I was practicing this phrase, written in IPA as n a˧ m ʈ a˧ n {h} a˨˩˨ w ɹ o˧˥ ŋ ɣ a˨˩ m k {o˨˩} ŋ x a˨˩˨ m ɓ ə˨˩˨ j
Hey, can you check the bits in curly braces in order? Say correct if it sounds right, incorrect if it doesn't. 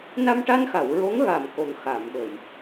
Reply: incorrect, correct

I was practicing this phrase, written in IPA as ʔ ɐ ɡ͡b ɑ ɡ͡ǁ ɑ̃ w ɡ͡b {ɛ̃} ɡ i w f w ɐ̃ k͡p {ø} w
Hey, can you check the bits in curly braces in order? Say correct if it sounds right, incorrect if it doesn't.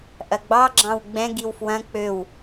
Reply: correct, correct

